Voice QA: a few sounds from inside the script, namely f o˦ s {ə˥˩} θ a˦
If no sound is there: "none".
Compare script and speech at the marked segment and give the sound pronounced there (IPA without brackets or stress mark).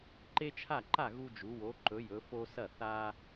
ɐ˥˩